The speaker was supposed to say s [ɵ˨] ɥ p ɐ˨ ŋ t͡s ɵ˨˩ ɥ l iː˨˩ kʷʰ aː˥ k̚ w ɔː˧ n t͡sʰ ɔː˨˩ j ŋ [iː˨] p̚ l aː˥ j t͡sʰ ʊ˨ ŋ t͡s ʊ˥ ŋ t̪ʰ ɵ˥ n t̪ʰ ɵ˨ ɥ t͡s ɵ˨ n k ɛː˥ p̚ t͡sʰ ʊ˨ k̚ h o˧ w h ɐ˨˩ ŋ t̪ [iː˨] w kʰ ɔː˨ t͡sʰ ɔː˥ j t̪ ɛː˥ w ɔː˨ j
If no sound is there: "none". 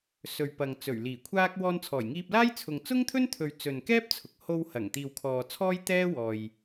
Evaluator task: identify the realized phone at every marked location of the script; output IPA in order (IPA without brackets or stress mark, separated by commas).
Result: ɵ˨, iː˧, iː˨